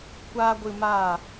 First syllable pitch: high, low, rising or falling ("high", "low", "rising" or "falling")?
high